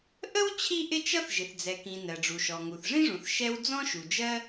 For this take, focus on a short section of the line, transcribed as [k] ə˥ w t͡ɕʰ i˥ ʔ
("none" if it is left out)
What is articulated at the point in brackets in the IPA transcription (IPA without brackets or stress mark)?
ʔ